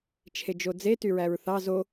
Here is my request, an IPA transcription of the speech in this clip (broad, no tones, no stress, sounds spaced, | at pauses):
t͡ʃʰ e d͡ʒ o d͡z e t y ɹ æ ɹ θ ɑ z o